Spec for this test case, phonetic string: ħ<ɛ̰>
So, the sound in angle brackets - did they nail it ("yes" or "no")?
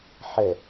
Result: no